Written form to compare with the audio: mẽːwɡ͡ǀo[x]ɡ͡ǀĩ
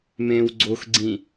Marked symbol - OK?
yes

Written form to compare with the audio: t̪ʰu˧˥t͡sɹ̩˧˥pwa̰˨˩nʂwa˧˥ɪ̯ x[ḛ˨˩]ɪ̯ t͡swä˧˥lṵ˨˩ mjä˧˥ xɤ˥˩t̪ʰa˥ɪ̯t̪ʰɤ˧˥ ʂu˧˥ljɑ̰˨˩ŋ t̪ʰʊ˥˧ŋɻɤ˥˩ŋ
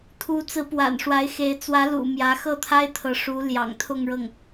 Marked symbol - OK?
no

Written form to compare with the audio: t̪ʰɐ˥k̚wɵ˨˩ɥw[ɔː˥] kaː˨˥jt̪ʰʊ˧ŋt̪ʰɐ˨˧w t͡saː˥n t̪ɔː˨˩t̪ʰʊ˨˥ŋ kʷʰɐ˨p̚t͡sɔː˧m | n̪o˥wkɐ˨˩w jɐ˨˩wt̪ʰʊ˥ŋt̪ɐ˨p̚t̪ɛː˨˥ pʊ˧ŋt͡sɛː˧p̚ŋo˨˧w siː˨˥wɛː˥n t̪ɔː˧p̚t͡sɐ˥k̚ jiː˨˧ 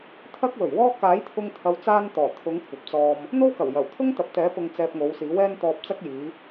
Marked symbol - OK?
yes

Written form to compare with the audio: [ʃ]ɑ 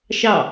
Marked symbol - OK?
yes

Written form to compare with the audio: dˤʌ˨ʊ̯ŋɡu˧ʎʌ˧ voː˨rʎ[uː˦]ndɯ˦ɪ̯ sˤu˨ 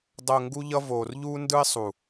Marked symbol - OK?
yes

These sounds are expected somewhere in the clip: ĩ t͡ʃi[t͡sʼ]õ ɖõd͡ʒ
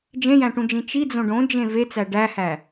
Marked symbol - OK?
no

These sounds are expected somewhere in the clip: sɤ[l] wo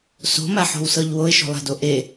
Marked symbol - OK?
no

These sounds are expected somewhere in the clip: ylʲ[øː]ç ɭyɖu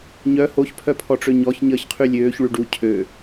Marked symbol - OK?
yes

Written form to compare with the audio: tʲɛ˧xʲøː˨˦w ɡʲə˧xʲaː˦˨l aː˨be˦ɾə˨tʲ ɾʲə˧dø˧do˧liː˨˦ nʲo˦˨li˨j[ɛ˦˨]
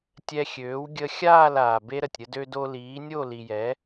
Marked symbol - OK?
no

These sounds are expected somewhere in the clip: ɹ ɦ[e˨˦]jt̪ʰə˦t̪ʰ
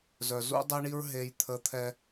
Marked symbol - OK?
no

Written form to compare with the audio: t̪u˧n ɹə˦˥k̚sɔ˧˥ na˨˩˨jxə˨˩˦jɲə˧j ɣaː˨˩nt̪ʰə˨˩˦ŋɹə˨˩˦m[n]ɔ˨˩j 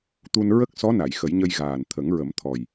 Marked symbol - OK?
no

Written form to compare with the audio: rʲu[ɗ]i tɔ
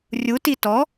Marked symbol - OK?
no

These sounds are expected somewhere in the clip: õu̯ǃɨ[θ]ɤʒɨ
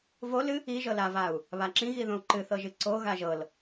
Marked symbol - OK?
yes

